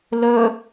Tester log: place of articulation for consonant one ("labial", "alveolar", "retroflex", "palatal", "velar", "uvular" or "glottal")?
alveolar